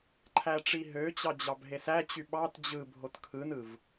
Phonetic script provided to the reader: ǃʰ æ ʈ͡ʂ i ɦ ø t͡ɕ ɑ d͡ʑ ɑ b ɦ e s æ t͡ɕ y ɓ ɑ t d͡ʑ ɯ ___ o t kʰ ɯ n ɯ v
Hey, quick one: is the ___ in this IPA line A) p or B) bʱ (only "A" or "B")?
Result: B